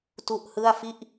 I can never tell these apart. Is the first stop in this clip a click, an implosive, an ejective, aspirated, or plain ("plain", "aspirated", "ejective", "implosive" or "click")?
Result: plain